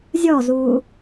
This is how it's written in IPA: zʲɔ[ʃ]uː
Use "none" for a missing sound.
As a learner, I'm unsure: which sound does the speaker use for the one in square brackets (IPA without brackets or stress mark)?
z